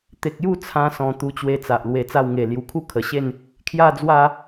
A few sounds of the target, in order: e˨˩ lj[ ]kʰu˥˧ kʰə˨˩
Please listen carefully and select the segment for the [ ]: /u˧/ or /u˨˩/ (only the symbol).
u˨˩